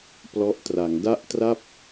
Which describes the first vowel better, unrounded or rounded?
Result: rounded